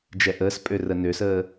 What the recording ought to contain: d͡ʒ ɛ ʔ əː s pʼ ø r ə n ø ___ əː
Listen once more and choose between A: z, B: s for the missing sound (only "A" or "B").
B